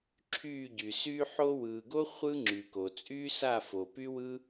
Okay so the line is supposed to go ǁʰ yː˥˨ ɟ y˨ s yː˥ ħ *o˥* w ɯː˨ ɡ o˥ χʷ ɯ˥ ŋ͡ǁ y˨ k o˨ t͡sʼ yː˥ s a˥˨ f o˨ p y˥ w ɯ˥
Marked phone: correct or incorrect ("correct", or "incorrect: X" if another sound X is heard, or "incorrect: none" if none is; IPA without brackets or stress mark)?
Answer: correct